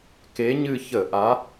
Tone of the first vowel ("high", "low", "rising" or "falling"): rising